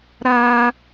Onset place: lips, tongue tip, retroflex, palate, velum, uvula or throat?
tongue tip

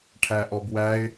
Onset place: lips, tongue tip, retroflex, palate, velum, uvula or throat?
retroflex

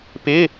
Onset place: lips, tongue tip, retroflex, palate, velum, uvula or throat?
lips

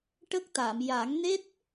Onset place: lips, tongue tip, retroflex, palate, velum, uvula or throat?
retroflex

